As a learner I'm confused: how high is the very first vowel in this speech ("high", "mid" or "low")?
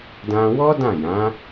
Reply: low